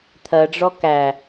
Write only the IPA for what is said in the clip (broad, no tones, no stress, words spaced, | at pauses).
t̪ʰɜɖ͡ʐɔ kæ